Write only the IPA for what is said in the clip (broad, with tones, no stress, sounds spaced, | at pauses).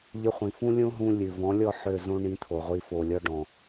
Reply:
ʎ ɪ˧ χʷ ĩ˩ f ũ˥ lʲ õ˥ ɦ ũ˧ lʲ ɨ˩ v ɔ̃˩˥ lʲ ɔ˥˩ ħ ø˥˩ z õ˥ ɳ ĩ˩˥ t̪ʰ o˩ ʁʷ i˧ f o˩ lʲ ɔ˥ ɖ ɔ̃˩